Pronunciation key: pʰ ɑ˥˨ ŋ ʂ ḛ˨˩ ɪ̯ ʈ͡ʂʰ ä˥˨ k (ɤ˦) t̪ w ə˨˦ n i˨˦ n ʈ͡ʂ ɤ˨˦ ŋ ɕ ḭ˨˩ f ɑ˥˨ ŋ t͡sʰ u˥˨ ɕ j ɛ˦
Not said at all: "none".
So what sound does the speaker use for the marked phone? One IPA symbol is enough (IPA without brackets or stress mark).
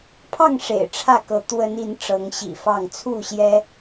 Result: ɤ˨˦